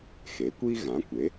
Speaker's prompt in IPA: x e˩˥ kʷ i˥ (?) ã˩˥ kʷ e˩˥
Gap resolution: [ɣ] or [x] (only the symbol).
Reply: ɣ